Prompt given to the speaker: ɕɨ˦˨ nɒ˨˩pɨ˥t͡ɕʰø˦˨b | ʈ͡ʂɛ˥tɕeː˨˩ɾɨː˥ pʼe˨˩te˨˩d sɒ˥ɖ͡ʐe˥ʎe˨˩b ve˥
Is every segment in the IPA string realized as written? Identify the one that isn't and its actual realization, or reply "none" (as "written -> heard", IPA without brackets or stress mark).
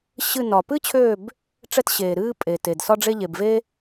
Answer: none